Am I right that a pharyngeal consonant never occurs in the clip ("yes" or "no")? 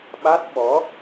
yes